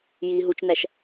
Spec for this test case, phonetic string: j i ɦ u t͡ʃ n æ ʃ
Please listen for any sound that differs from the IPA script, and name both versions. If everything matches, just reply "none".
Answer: none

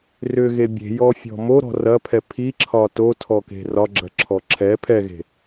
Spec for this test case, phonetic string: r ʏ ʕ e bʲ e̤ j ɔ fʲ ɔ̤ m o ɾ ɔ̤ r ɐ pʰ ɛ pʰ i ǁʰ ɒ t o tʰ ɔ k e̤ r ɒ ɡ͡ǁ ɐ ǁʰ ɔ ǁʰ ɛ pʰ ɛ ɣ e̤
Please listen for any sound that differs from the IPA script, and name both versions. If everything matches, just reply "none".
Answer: ʕ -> ɣ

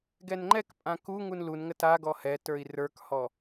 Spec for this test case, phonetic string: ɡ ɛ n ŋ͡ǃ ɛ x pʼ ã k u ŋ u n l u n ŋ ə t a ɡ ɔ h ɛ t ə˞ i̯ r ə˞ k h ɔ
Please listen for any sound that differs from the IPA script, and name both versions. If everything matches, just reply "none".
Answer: x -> k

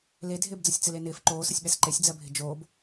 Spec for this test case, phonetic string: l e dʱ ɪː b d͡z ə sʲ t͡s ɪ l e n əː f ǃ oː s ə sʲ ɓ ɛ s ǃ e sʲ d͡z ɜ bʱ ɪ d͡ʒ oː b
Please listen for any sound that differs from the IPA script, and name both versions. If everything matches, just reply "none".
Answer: əː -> ɪː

